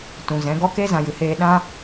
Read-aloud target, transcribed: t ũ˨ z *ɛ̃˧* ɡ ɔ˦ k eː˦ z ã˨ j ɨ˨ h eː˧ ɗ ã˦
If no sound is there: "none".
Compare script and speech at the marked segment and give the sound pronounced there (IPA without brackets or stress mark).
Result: ɛ̃˨˦